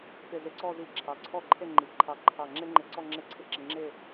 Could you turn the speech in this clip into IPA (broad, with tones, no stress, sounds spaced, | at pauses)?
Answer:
p ɪ˧˩ z e˧ ǀ ɔ˥˧ z i˧˩ ǁʰ ɑ˩˧ ǀʰ ɔ˥˧ ǃʰ e˥˧ ŋ͡ǃ i˩˧ ǃʰ ɑ˧˩ ǃʰ ɑ˧˩ ŋ͡ǁ e˥ ŋ͡ǃ ɪ˧˩ ǀ ɔ˥˧ ŋ͡ǁ e˥˧ ǀʰ ɪ˥˧ ǁ ɪ˧ ŋ͡ǁ ɪ˥˧